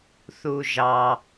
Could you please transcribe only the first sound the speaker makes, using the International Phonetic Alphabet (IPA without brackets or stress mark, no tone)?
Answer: θ